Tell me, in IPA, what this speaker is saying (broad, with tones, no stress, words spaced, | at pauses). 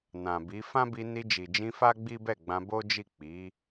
nã˨bi˨˦ fã˦bi˧ ni˧d͡ʒi˨d͡ʒĩ˧ fa˦ɡ͡bi˦bɛ˦˨ ɡ͡bã˧bo˦d͡ʒi˦˨ k͡pi˨˦